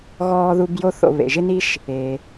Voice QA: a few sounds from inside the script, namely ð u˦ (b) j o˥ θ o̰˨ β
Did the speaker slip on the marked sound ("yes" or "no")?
no